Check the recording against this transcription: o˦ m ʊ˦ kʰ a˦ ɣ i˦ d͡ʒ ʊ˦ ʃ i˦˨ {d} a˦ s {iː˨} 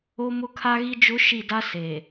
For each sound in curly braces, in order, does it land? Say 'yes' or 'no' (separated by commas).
yes, no